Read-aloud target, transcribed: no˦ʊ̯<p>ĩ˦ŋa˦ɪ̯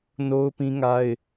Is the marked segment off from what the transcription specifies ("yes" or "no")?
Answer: no